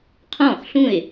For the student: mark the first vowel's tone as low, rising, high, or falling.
falling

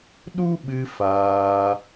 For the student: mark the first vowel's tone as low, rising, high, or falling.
high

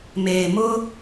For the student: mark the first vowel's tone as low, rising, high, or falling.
low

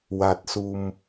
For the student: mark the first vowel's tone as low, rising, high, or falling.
low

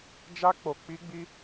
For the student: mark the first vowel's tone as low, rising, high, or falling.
high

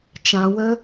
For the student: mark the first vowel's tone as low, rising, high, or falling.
low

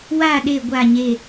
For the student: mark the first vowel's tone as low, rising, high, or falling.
falling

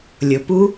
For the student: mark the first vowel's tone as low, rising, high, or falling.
low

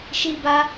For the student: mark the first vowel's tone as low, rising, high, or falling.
high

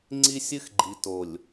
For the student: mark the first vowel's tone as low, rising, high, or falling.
high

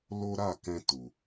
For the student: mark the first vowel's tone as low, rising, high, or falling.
high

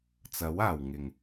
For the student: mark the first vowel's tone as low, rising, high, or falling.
rising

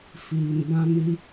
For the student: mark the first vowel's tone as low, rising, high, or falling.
low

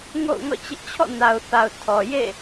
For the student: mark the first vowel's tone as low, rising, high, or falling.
falling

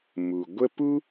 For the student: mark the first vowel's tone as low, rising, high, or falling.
low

